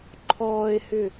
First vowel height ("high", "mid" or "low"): mid